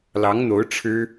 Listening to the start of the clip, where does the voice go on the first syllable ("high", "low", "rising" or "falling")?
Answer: rising